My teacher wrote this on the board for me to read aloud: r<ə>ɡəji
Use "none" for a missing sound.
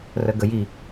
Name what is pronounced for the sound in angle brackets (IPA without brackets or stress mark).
ə